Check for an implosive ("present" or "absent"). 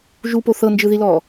absent